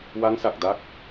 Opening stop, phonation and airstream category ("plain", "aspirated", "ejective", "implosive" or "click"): plain